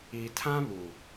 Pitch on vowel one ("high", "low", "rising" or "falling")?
low